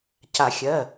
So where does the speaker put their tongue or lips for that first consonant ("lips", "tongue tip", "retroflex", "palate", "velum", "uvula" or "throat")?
palate